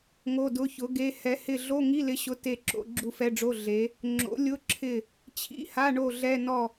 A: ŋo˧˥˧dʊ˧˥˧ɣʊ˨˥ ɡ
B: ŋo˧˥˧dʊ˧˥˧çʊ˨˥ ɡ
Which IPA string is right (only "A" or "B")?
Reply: B